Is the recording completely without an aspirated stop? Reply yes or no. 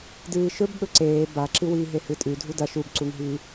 yes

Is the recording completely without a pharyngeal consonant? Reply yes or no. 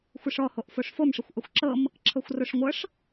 yes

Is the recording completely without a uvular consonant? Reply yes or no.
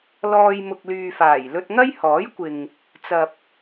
yes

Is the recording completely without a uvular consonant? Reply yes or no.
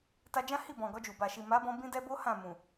yes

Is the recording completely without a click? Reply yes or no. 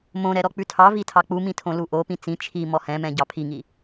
yes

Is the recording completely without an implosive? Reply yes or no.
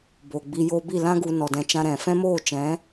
yes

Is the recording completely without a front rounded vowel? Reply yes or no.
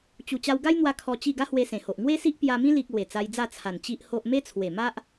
yes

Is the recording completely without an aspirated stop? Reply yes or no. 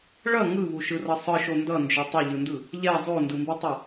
yes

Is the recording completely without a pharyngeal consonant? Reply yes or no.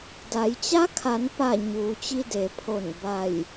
yes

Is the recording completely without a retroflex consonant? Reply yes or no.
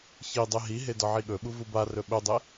yes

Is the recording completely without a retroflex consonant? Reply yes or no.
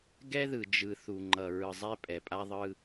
yes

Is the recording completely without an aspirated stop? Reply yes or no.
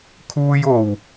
no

